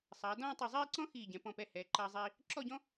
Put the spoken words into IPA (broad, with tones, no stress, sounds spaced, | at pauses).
sˤ ɐː˩˧ d ɔ̃ː˥˧ tˤ ɛ˧˩ zˤ iː˥˧ ǀ ɔ̃˥ x iː˧˩ ɟ ɛ̃˩˧ p ɔ̃˧˩ p ɛ˧˩ h ɛː˩˧ ǃ ɐː˧ zˤ iː˧ | ǁ ɔ˥˧ ɟ ɔ̃˥